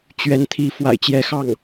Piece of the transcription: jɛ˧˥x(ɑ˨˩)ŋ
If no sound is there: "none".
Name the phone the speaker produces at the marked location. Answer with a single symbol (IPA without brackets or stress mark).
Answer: ɑ˥˩